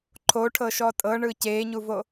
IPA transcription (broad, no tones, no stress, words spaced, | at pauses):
ǃʰoʈʰɤ ʃɔtʼɤɳɯ ceːɲuvo